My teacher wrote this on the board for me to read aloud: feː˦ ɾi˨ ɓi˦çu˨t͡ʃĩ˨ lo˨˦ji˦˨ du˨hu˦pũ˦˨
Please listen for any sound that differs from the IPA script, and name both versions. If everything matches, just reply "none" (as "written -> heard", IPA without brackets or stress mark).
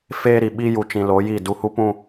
ç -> j